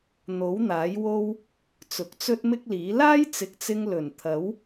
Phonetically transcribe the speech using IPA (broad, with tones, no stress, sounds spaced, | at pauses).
n̪ o˨˥ w n̪ aː˨˥ j w o˥ w | t͡s ʊ˨ k̚ t͡s ɵ˥ t̚ m ɪ˥ k̚ l iː˨˥ l aː˥ j t͡s ɪ˨ k̚ t͡s ɪ˧ ŋ l ɵ˨˩ n t̪ʰ ɐ˨˥ w